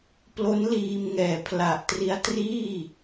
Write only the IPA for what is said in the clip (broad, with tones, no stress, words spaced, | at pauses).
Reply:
plo˦˥nliː˧m ŋɛː˨˩pʰla˨˩ʔ tri˦˥a̯triː˥˩